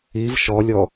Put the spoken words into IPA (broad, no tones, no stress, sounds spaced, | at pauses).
i v ʃ ɔ lʲ ɔ